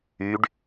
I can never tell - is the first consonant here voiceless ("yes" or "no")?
no